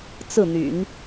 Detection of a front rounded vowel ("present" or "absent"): present